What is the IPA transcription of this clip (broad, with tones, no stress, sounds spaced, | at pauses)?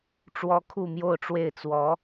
ʈ͡ʂ w ɔ˥ kʰ u˥˧ m j o˥˧ ʊ̯ ʈ͡ʂ w e˥˩ ɪ̯ t͡s w ɔ˧˥